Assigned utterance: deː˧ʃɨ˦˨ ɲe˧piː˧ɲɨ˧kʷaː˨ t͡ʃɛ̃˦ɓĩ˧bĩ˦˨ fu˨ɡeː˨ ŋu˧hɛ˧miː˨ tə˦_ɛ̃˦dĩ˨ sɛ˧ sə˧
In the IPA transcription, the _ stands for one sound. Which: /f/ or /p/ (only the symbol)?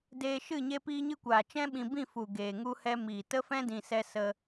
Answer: f